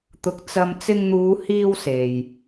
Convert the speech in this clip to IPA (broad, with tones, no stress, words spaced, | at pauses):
t̪ʊ˨k̚ t͡sɐ˧m t͡sɪ˧ŋn̪uː˨˧ hiː˧w se˨j